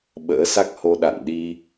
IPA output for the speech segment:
ɓ ə̰ː˧˥ s a˦˥ k̚ h o˧ ɗ a̰˧˨ n ɗ i˧

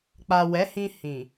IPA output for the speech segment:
k͡p a˨ w ɛ˨˦ h ĩ˧ h ĩ˨

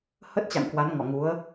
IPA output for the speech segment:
h ə˦˥ t̚ t͡ɕ a̰˧˨ ŋ k w a˨˦ n ŋ ɔ˧˩ ŋ u˨˦ ə̯

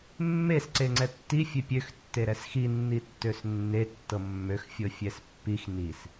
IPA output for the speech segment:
mː e s ǀ e ŋ͡ǀ ɛ tː i fʲ e pʲ ø x tː e ɾ ɛ s x i nː i tː ø s nː e tː ɤ mː ø x fʲ ɤ fʲ ɛ s pː i x n i s

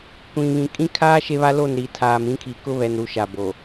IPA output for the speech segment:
kʷ ĩ˨ β ĩ˨ kʼ ĩ˦ kʰ aː˦ ʃ e˦ β a˦ l o˦˨ n ɾ i˨ tʰ aː˨ m ĩ˦ kʰ i˨ k ʊ˦ β ɛ˨ n ɾ u˨˦ ʃ a˨ b o˨

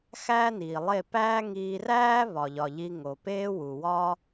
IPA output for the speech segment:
x æː˦ n iː˨ lˠ e˦˨ p æː˦ ŋ iː˧ r æː˦ β ɒ˨ ʎ ɒ˨ ʎ i˧ ŋ o˨ p eː˦ w u˨ w ɒ˦

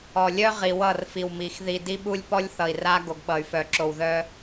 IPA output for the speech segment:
ɔ˨ lʲ œ˦ ʁ i˨ w ʌ˦˨ r f i˨ w m i˨ x ð i˨ d i˦ ɓ u˦ lʲ p ɔ˦ lʲ θ ʌ˨ i̯ r a˦ ɡ o˨ ɡ ɓ ʌ˨ y̯ f œ˨ ǁ o˨ w ð œ˦

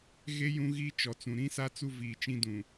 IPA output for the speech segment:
ɣ e˦ j ũ˦ ɣ i˦ t͡ʃ ɔ˨ t͡s ũ˨ ɾ ĩ˦ s a˦ t͡s u˦ v iː˨ t͡ʃ ĩ˦ d ũ˨

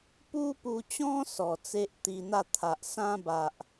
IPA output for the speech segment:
p u˦ p u˧ t͡ɕ ɔ̃˦ s ɔ˨˩ t͡s e˦ ʔ t̪ i˧ n̪ a˥˧ t̪ʰ a˨ ʔ s ã˦ b a˨ ʔ

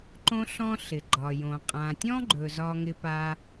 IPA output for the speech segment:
ǃ õ˥ ɬ ɔ̃˥ ɬ ɪ˩ ɡ͡ǃ ɒ˩ j õ˩ qʼ ã˩ tʲ ɔ̃˥ ɡ͡ǃ ɵ˩ z ɒ˥ ŋ ɪ˥ p a˥

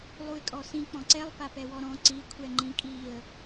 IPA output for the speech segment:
lˠ u ɪ̯ kʼ ɔ s ĩ k͡p ɔ̃ ǀ ɛ lˠ p a p ɛ w ɔ ɾ ɔ̃ ǀ i kʷʰ ɛ ŋ͡ǃ ĩ kʼ i ə̯

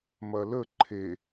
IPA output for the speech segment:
m ɐ l ə ǃʰ e

